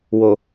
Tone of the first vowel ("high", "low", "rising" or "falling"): low